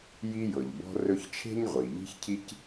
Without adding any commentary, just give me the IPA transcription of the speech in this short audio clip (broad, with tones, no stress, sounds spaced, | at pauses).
j i˦ j ɤ˩ ʎ b ɔ̤˦ r ɵ˦ ç t͡ʃʰ e̤˥ ɲ ʁʷ i˩ ʎ i̤˦ ç cʰ i˦ c